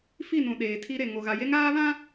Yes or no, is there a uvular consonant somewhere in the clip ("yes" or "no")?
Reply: no